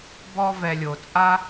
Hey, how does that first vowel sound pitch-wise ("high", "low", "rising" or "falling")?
high